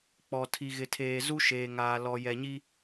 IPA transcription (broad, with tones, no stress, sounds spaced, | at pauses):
k͡p ɔ˨ tʰ i˨ ɣ ɪ˨ tʰ eː˨ z u˦ ʃ eː˨ ŋ aː˨ l ɔ˨ j ɛ˨ ɲ i˦